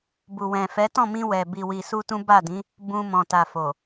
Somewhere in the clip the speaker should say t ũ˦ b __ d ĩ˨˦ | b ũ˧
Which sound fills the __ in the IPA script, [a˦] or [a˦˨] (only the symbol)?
a˦˨